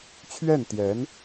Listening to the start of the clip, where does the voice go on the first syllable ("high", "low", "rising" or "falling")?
falling